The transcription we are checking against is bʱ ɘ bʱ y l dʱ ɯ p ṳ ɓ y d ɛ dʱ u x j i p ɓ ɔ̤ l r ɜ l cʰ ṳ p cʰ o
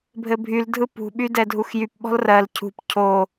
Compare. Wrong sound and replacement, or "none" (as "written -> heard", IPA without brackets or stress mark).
i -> y